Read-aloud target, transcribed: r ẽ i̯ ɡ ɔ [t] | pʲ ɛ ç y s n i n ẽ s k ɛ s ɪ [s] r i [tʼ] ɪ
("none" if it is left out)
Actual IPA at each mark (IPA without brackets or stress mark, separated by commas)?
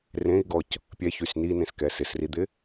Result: c, s, d̪